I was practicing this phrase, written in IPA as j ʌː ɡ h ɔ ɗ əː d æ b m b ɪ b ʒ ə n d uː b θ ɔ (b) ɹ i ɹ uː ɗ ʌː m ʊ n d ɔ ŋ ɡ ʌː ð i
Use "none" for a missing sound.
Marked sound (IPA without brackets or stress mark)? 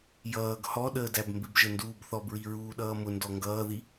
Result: b